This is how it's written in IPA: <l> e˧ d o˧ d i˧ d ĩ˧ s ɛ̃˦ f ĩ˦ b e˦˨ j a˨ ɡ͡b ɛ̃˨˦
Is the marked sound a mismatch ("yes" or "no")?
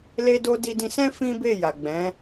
no